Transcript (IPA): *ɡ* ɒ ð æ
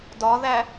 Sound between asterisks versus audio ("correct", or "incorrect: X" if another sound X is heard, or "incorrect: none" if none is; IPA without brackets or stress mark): incorrect: d